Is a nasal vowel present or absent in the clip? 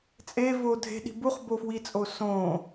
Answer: present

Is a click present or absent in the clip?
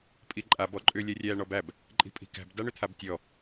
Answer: present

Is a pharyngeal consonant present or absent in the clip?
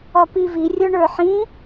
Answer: present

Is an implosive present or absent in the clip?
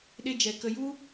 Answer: present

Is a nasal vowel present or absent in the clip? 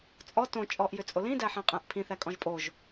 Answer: present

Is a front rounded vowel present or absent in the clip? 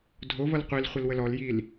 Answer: absent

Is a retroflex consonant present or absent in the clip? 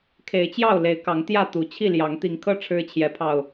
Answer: present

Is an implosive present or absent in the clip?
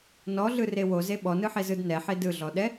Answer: present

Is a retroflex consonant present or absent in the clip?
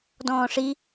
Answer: present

